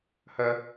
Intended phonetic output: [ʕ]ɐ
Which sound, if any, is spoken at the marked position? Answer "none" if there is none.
h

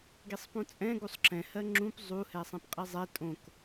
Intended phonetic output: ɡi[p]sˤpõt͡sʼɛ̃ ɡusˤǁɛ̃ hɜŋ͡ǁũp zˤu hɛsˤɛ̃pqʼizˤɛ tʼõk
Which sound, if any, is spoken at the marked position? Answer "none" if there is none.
none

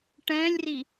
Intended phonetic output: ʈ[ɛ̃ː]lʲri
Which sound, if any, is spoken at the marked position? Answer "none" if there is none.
ɛ̃ː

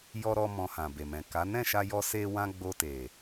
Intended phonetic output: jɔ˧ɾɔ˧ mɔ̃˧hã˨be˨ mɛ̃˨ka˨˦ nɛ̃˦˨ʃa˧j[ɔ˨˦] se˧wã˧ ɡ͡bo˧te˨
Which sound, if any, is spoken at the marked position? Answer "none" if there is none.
ɔ˧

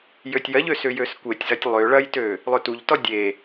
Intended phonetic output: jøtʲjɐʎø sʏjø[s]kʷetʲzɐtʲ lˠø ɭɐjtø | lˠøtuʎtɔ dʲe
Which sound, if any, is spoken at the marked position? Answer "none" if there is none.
s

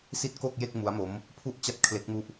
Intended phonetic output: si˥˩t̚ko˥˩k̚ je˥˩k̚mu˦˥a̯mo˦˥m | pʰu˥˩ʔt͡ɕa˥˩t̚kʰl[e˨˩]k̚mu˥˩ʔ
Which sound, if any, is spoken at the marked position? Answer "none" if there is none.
e˦˥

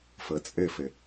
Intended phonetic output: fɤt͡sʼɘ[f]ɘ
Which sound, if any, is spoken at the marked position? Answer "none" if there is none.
f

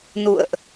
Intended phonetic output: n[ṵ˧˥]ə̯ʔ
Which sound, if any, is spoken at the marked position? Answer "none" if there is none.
ṵ˧˨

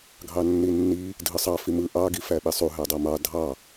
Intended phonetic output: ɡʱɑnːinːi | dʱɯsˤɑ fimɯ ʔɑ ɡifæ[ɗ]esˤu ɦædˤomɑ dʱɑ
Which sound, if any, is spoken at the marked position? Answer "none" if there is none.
ɓ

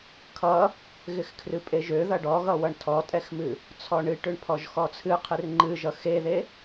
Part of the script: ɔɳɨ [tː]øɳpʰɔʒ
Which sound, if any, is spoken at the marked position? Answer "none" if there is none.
ʈ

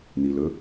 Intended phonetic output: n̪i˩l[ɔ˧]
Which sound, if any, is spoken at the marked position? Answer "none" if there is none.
ɵ˧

